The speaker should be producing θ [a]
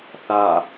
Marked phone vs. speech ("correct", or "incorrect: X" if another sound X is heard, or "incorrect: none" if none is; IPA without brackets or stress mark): correct